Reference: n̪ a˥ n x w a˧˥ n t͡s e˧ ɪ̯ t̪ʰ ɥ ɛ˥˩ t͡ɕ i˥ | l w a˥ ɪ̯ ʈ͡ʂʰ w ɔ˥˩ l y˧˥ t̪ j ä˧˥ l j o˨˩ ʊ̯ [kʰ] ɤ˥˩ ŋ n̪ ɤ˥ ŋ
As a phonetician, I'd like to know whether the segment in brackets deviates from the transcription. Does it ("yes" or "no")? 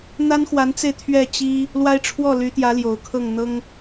no